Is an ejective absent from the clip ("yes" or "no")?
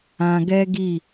yes